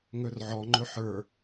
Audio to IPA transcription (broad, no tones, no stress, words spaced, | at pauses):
ŋɵrʕɔ ŋ͡ǃɵħə˞